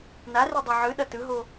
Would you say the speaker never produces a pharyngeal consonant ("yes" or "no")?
no